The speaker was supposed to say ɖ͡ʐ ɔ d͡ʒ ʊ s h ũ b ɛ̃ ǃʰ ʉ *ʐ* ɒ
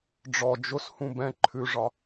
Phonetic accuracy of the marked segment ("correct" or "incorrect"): correct